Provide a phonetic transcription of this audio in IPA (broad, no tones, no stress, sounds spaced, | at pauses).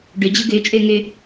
ɖ ø d͡ʑ ɯ ɡ ø t͡ʃʼ ø ŋ ø